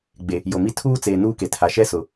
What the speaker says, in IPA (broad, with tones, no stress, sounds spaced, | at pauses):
ɡ͡b e˨ | j o˨ m i˦ tʰ uː˦ t͡s eː˨ n uː˦ k e˨ tʰ a˨ ʃ ɛ˦ s ʊ˨